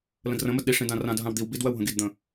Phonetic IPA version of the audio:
l ə̃ d r ə̃ m ə d ɗ i ʂ ĩ d ã r ã d ɦ ã w d̪ i w b i d w ɜ w ɦ ə̃ ɡ i d d̪ ə̃

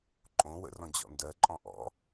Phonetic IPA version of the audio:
ǃʼ õ w ə̰ r ɔ̃ d͡ʑ ɔ̰ n d ɜ ǃʼ ɔ̃ ʔ ɔ̰

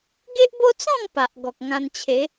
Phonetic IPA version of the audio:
ɡ e˦ ʔ b o˦ t͡s ɔ̃˥˧ ŋ p a˨ ʔ ɡ ɔ˨ k̚ ŋ ã˧ n t͡ɕʰ e˨˦

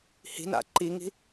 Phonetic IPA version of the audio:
h i̤ n a̰ ǃ i ŋ i̤

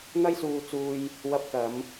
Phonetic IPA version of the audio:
n̪ ɐ˥ j s uː˧ t͡s uː˧ j | w ɐ˧ p̚ k ɐ˨˧ m

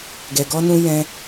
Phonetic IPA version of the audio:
ɡ ɛ˨ ɡ ɔ˧ n ũ˧ j ɛ̃˧

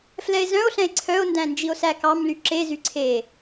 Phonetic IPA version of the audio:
f l ɛ e̯ z œ̃ o̯ ɬ ɛ̃ e̯ ǀʰ œ o̯ n d æ̃ n d͡ʒ i o̯ s æ k ɑ m l y ǁ e z y ǀʰ e

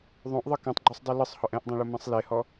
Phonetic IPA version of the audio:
ðˤ õ ʔ ðˤ ɯ k ẽ tˤ ɡ͡ǃ u sˤ dˤ i l ɯ sˤ h ɔ ʔ ɛ̃ ʔ dˤ ɛ̃ ɭ o m ɛ̃ sˤ l e h ɔ

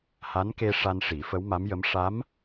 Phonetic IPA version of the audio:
h a˧˥ n k e˧ ʂ a˧ n ʂ i˨˩˦ f ə˧˥ w m a˧˥ m j ə˧˥ m ʂ a˧˥ m

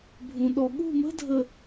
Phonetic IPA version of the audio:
bʱ ũ˨ ɗ ɔ˨ ɠ ṳ˦˨ m ə̤˦ dʱ ə˨

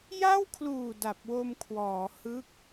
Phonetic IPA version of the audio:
j a˥˩ w kʰ l uː˨˩ d a˨˩ p̚ w o˧ m kʰ w ɔː˩˦ h ɯ˦˥ k̚

